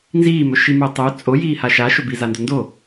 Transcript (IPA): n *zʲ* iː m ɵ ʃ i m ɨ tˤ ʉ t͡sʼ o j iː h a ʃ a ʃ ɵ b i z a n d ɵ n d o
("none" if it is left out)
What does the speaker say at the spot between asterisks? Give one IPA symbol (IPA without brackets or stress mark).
z